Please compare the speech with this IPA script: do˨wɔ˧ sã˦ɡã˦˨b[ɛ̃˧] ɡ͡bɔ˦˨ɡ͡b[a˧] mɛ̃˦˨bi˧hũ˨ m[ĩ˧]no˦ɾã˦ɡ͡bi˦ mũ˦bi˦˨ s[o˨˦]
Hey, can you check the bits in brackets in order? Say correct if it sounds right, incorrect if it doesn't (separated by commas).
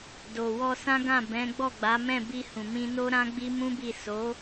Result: incorrect, incorrect, correct, correct